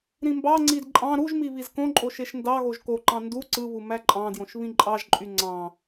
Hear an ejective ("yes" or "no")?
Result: yes